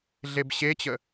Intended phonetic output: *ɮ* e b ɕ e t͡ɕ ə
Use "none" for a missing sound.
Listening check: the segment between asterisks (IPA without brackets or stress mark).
ɮ